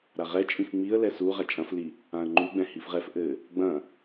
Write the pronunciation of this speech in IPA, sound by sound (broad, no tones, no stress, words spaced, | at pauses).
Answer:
ɾaʁɛ t͡ʃʼĩfŋ͡miə̯ lɛsu ʁat͡ʃʼɐ̃fli | ãə̯ŋ͡ǃuɡ͡bɛ̃ hifʁɛf ʔɘ | ɡ͡bɐ̃